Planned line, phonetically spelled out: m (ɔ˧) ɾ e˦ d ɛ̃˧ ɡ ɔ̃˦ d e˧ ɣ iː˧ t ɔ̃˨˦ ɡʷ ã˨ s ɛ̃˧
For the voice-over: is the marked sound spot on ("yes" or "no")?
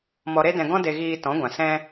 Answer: yes